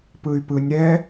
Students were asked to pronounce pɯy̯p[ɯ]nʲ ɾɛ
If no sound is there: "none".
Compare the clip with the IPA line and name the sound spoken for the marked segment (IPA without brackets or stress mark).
ɯ